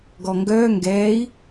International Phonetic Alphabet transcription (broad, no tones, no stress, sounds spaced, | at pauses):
ɡ ɔ ŋ ɡ œː ŋ ɡ ɛː i̯